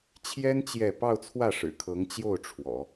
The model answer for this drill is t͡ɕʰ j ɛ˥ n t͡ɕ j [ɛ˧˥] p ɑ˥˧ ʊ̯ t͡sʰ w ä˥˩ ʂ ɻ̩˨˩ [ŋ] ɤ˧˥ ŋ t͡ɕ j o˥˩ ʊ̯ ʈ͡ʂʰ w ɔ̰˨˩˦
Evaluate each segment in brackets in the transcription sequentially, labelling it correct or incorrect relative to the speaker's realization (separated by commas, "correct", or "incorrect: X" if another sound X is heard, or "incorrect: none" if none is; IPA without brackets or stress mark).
incorrect: ɛ˥˧, incorrect: kʰ